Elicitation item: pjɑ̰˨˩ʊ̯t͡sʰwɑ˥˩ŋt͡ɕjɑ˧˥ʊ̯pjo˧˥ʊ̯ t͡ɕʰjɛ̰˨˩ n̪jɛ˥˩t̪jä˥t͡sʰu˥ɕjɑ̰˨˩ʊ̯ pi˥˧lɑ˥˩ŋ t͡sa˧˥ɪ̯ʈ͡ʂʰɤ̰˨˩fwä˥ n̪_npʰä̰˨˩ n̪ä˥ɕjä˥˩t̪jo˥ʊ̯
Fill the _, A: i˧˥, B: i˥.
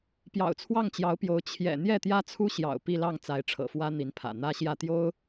A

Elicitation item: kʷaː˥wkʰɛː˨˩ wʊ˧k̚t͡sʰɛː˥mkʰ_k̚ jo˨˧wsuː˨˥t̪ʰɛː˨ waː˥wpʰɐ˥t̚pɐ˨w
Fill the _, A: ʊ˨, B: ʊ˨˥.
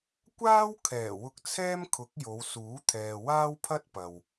B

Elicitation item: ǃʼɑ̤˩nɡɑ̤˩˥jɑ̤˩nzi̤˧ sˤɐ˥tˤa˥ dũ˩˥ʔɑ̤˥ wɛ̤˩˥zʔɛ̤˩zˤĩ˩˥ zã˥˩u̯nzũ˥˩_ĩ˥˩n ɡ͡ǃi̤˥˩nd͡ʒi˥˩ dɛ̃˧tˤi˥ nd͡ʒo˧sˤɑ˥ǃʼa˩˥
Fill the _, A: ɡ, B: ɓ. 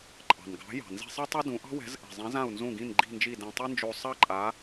A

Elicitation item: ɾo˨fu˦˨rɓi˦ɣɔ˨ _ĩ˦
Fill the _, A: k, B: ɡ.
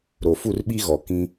A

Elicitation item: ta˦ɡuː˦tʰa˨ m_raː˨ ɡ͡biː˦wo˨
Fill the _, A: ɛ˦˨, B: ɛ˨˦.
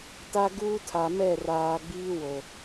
A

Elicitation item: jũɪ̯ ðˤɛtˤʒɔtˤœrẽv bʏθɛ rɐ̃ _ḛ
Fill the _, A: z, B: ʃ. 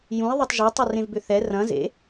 A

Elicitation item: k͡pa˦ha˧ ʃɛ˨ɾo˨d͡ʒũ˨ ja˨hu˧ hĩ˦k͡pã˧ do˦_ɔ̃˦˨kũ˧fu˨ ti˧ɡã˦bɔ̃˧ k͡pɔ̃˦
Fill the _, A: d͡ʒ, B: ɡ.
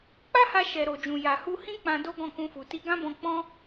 B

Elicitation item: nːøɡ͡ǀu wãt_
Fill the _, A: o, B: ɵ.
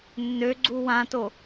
A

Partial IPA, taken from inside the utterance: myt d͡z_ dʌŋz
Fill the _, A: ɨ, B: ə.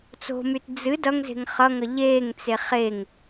A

